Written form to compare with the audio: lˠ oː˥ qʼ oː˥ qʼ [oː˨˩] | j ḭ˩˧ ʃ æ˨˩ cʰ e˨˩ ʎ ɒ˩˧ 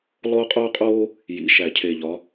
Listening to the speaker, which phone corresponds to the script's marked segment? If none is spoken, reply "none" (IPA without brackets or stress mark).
oː˥